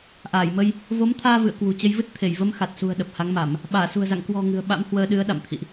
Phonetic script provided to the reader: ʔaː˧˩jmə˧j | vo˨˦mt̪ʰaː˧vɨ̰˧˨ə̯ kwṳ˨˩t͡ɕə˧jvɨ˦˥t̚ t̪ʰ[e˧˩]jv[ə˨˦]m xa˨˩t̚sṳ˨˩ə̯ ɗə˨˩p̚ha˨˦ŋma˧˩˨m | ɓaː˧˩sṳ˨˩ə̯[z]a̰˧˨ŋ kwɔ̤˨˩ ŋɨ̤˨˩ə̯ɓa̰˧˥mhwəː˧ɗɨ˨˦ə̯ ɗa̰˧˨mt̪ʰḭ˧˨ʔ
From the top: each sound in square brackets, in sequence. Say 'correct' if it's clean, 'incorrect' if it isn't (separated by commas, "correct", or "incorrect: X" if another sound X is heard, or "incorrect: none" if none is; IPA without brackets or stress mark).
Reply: correct, incorrect: ə˧, correct